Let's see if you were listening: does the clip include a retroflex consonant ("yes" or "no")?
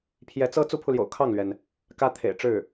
yes